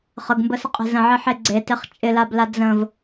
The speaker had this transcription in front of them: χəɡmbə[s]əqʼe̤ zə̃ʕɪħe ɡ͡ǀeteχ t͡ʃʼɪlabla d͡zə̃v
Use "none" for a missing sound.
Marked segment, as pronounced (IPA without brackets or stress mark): s